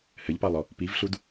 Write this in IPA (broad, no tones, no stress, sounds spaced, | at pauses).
h ɘ ʎ p ɑ lˠ ɔ | p i v ɬ u d